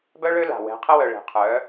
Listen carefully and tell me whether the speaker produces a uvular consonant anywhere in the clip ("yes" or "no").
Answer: yes